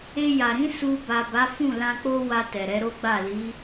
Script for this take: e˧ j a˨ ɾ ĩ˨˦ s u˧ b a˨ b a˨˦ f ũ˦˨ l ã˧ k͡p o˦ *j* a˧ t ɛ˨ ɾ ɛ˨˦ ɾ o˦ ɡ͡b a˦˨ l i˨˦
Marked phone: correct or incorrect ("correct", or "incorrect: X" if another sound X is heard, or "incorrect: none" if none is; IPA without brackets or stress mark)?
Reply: incorrect: w